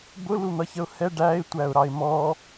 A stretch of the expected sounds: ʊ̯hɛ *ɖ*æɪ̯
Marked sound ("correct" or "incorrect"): correct